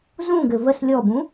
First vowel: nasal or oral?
nasal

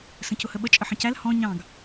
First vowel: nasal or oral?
nasal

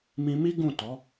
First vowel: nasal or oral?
nasal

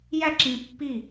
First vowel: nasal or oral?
oral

